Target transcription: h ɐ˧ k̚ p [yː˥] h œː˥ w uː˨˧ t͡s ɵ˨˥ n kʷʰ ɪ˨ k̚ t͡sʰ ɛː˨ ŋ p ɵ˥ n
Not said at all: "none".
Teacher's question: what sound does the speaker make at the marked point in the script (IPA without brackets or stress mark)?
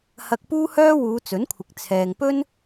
uː˥